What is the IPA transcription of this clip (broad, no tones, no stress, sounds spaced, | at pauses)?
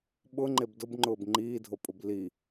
ɓ ʊ ŋ͡ǃ e b d ʊ b ŋ͡ǃ ʊː b ŋ͡ǃ iː dʱ o pʼ ʊ b l i